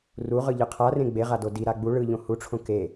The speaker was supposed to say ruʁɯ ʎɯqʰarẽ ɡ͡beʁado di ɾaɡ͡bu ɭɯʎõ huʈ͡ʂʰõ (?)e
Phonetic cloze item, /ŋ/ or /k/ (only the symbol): k